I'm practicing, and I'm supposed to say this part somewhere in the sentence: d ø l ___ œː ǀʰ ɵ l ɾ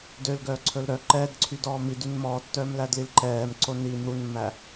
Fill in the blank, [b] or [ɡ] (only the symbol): ɡ